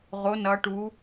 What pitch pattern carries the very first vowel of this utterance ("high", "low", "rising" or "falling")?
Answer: rising